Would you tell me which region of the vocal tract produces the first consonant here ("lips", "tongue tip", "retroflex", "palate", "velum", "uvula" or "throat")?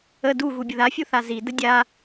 tongue tip